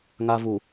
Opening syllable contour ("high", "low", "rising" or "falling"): low